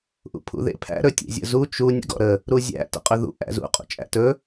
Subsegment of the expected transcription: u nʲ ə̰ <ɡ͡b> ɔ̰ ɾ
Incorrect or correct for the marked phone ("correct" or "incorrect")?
incorrect